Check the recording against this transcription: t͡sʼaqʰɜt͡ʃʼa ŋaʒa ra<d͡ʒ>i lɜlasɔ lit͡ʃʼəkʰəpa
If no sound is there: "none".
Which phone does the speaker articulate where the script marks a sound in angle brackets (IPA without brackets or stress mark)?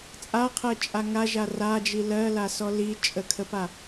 d͡ʒ